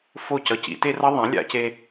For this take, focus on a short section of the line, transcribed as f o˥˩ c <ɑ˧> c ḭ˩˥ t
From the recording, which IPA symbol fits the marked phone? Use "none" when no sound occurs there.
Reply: ʌ˧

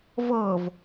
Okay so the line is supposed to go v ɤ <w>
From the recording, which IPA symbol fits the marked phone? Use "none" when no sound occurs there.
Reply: v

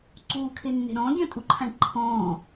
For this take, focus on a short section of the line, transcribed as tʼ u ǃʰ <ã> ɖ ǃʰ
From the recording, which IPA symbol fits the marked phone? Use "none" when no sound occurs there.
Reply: ã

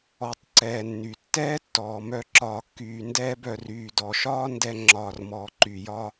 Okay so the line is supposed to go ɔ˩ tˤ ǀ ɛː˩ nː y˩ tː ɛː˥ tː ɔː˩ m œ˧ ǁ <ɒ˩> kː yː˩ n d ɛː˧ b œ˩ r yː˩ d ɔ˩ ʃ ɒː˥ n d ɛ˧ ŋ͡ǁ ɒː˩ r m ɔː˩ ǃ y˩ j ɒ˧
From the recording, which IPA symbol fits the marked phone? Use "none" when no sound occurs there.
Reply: ɒː˩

